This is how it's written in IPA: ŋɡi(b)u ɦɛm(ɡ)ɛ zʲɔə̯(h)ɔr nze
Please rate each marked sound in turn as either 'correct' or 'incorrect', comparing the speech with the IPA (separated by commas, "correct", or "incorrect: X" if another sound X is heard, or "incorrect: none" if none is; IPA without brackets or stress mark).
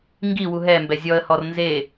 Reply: incorrect: w, incorrect: b, correct